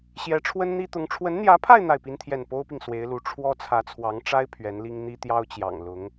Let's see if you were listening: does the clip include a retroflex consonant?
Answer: yes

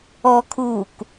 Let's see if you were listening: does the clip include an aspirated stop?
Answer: yes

